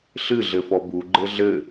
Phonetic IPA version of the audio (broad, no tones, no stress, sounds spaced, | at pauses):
ɬ ɨ ɮ ɘ f ɔ b u ɡ͡ǃ ɘ ɮ ɘ